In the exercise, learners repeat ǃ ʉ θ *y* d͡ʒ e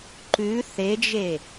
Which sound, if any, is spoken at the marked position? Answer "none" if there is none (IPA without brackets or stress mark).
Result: e